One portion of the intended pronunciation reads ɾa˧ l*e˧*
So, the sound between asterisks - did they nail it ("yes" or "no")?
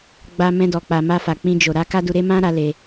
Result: yes